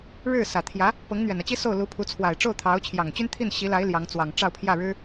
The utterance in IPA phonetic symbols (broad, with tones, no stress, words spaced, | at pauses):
ɻɻ̩˥˩sä˨˩ t̪ʰjä˧˥ | pɤ˧˥ŋn̪ɥɛ˨˩nä˦t͡ɕi˥ so˥˩ʊ̯ lu˧˥pʰu˧˥ t͡sʰwa˨˩ɪ̯ʈ͡ʂo˥˩ʊ̯t̪ʰɑ˧˥ʊ̯ t͡ɕʰjɑ˨˩ŋt͡ɕy˥nt̪ʰi˥˩n ɕi˧˥la˧˥ɪ̯ ljɑ˧˥ŋt͡swɑ˨˩ŋ ʈ͡ʂɑ˥˧ʊ̯pʰjä˥˩ɻɻ̩˥